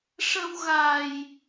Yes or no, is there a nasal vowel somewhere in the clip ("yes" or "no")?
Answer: no